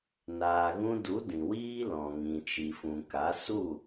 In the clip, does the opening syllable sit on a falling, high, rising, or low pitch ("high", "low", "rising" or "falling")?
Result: low